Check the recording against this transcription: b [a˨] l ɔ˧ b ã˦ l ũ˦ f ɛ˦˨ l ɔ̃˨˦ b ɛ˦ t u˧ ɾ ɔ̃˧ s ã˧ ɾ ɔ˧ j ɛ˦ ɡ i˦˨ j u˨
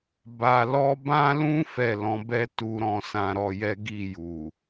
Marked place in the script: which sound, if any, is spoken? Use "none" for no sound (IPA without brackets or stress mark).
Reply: a˨